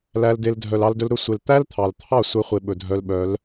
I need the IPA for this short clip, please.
l æ˧ l d e˧ l dʱ œ˨ l ɑ˧ l d ɵ˧ l ɾ ɵ˦ sʷ e˧ l t̪ æ˦ l t̪ʰ ɑ˨ l t̪ʰ ɑ˦˨ sʷ ɛ˧ χʷ e˦ ɓ ɵ˧ dʱ œ˦ l ɓ œ˨˦ l

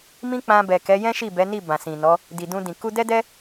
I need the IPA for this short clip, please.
m ĩ˦ k͡p ã˧ b ɛ˨ k ɛ˨˦ j ɛ̃˦ ʃ i˦˨ b ɛ˨˦ n i˦˨ b ã˨ s ĩ˨ n ɔ˨˦ | d i˨ d ũ˧ d ĩ˨ k u˧ d ɛ˦ d ɛ˦

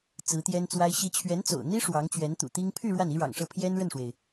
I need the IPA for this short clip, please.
t͡s ɹ̩˧˥ t̪ j ɛ˥ n t͡s w a˥ ɪ̯ ɕ i˧˥ t͡ɕʰ ɥ ɛ˧˥ n t͡s o̰˨˩ ʊ̯ n̪ i˥ ʂ w ɑ˧˥ ŋ t͡ɕ ɥ ɛ˧˥ n t̪ ṵ˨˩ t̪ i˥ ŋ pʰ y˥˧ ɻ w a˥˩ n i˥ ɻ ɑ̰˨˩ ŋ ʂ ɤ˥˩ pʰ j ɛ˥ n ɻ ə˥˩ n ʂ w e˩ ɪ̯

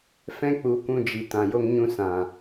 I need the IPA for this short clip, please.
f ɛ̃˦ k͡p u˨˦ kʷ ũ˧ d͡ʒ i˨ t ã˨ j o˧ ŋ ɲ ũ˧ s ã˨

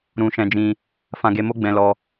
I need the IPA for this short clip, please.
ɾ ũ˧ ʃ ɛ̃˧ d͡ʒ ĩ˧ | f ã˧ ɡ e˧ m o˦ ɡ͡b ɛ̃˧ l ɔ˧

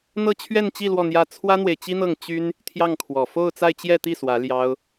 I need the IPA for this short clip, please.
n̪ ɤ˥˧ t͡ɕʰ ɥ ɛ˥˧ n t͡ɕ i˥˧ l w ɔ˥˧ n̪ j ä˥˩ t͡sʰ w ä˥ n̪ w e˨ ɪ̯ t͡ɕ i˥ n̪ ɤ˥˩ ŋ t͡ɕ y˥ n | t̪ʰ j ɑ˥˩ ŋ kʰ w ɔ˨˩ f o˥˧ ʊ̯ t͡s a˥˧ ɪ̯ t͡ɕ j ɛ˥˧ t̪ i˥˩ s w ä˧˥ l j ɑ˥ ʊ̯

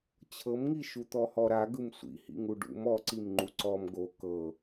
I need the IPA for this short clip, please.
t͡ɕʰ ɤ m ŋ i ʃ u t̪ ɔ h ɔ ɾ a ɡ ɯ m sʷ ḭ h ḭ ŋ u ɖ ṵ m ɔ ǀ i m ŋ͡ǃ u ǀ ɔ m ɡ o k ɤ

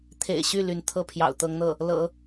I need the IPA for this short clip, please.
t̪ʰ ḛ˨˩ ɪ̯ ɕ y˥˩ l y˧˥ n t̪ʰ ɤ˥ pʰ j ɑ̰˨˩ ʊ̯ t̪ ɤ˧˥ ŋ n̪ ɤ˥˩ | l ɤ̰˨˩˦

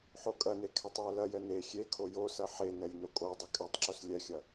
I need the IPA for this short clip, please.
ħ o kʼ ɐ n e kʰ ɛ tˤ j ɛ l ɐ j ɛ n e xʲ e kʰ o j o s ɐ ħ e n ɛ lʲ n o kʼ o dˤ ɐ kʼ ɛ tˤ ǁ o s lʲ ɛ xʲ ɐ

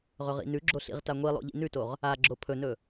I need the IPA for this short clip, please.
ʁ ɵ ʁ ḭ n ʉ ɡ͡ǁ o ɬ ḭ ʁ t a ŋʷ i lˠ o̰ ʎ ḭ n ʉ t o ʁ | a ɡ͡ǁ o pʰ ɵ n ɵ

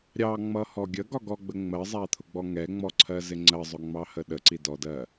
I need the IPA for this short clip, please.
ɾʲ ɑ ŋ͡m ʌ h ɔ ɡʲ ə ɡ ɒ ɡ ɔ ɡ͡b ə ŋ͡m ɜ zˤ æ t̪ʰ ʊ ɡ͡b ɔ ŋ ɛ ŋ͡m ɔ ǀʰ ɜ z ɪ ŋ͡ǀ ɜ zˤ ʊ ŋ͡m ɑ h ə ɗ ə ǀ i d ɔ d ɜ

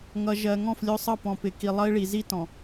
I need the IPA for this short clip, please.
ŋ ʌ˨ ʒ ɜ˨ ŋ ɔ̃˦˨ f lʲ ʊ˦˨ sˤ ʌ˦˨ p ɔ̃˨ p ɪ˨ k i˨ lˠ ʌ˦ i̯ ɭ i˨ z i˦ t ɔ̃˨

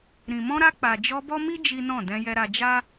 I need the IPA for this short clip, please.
ɾ ĩ˨ m ɔ̃˧ ɾ a˧ k͡p a˨ d͡ʒ ɔ˧ b ɔ˦ m i˦ d͡ʒ i˦ n ɔ̃˦˨ d ɛ̃˧ j ɛ˧ ɾ a˧ d͡ʒ a˦

